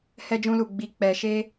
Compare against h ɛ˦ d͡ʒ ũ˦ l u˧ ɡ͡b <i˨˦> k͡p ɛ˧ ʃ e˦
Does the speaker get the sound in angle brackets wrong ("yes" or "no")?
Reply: yes